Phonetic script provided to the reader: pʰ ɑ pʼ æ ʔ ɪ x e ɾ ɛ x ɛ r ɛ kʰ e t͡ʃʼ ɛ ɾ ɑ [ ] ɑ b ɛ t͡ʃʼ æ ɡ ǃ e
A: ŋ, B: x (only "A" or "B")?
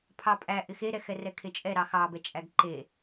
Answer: B